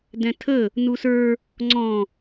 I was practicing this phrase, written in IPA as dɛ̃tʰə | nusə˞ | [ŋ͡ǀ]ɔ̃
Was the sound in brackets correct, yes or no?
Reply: yes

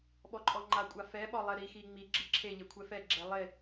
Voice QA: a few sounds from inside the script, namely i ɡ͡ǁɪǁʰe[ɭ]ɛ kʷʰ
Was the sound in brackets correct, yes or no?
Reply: no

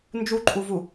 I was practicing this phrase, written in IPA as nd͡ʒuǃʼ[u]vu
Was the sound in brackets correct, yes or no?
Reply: yes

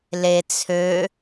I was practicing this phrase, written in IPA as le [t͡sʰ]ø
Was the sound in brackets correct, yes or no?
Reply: yes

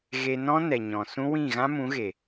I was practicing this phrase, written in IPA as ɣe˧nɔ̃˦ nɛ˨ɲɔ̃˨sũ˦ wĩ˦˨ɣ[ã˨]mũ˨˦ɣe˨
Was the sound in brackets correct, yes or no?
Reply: no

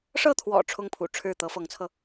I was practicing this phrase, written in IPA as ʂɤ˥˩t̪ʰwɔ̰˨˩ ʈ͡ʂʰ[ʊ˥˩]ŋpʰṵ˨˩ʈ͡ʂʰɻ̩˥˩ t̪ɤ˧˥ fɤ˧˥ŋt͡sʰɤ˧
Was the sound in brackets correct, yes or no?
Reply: yes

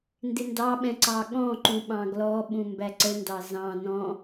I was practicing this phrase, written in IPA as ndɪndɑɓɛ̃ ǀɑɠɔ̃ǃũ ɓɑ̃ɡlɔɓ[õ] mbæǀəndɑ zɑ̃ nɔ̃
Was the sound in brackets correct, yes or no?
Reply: no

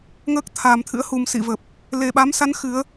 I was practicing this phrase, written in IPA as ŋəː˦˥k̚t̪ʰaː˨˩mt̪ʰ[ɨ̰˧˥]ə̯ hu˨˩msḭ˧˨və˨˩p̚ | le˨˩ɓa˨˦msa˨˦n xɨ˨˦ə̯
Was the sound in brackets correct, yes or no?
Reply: yes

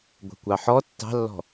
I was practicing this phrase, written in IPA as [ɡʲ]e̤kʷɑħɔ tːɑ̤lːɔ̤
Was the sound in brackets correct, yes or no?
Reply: no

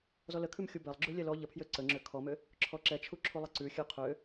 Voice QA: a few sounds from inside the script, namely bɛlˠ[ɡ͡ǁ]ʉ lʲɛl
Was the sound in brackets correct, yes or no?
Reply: yes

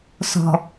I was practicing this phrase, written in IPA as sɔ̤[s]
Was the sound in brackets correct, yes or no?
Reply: no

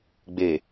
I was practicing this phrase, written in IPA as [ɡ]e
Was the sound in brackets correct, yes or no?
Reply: no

